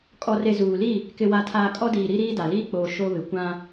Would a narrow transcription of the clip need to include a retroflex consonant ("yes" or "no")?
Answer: no